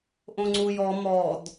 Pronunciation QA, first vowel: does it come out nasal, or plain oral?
nasal